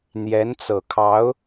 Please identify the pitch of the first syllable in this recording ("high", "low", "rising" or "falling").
rising